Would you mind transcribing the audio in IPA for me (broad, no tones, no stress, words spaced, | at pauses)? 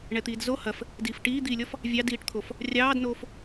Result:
ɳɛt̪iːdzo hɐf | diːfʈiːd̪iːlʲɔf | vʲɑdiːʈt̪ʰof | rʲɑːdnoːf